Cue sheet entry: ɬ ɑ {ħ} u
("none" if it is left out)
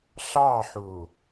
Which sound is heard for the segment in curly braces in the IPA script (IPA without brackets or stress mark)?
ħ